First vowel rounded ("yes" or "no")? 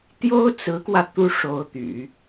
yes